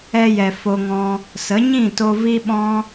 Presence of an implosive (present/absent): present